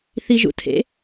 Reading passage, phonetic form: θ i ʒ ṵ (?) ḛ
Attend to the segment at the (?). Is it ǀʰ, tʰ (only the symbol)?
tʰ